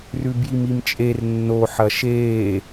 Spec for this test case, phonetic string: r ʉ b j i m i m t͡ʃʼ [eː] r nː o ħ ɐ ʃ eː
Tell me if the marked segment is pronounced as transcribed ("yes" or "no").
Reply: no